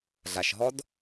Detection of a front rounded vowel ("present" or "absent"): absent